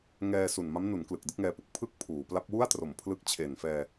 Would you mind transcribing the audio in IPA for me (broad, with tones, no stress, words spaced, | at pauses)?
ŋɛː˧su˨˩n ma˦˥mnu˩˦n klɯ˨˩k̚dɯ˦˥k̚ŋɛː˧pu˦˥k̚ pʰɯ˥˩k̚ pʰuː˩˦ pla˦˥p̚wu˥˩a̯tro˩˦mpʰlɯ˦˥k̚ t͡ɕʰe˨˩nfɛː˧